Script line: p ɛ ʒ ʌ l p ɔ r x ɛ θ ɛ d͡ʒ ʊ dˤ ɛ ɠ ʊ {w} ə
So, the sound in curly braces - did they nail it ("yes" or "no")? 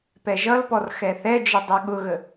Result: no